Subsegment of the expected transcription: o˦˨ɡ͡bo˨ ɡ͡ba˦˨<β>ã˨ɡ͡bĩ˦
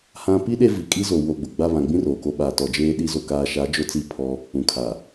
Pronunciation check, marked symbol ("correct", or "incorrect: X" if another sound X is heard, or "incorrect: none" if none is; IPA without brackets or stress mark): correct